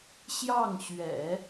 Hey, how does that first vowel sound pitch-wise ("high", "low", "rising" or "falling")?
falling